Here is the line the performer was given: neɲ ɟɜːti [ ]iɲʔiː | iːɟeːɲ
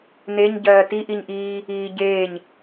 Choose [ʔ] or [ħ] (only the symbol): ʔ